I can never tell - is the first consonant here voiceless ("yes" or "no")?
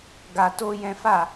no